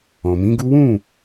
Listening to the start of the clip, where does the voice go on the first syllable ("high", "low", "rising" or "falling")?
low